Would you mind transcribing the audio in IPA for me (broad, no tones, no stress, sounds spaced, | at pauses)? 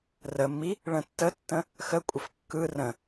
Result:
r ə mː i | ɭ ə̃ tː ə tː ə̃ | x ə kʷʼ ə f kː ɯ r ə̃